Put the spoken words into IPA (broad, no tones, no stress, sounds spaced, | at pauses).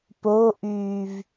p o ʔ yː v